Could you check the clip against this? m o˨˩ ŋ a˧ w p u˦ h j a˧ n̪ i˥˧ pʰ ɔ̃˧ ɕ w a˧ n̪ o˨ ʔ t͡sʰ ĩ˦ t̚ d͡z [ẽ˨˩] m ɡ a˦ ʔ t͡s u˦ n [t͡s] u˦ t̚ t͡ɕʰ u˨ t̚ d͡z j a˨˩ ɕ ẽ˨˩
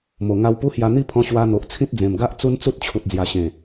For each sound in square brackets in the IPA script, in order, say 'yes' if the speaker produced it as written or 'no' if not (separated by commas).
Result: yes, yes